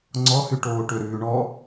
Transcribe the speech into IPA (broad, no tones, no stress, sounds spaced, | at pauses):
ŋ͡ǀ ɔ h y ʈ oː ʈ ɵ ɾ ʉː ɳ ɔ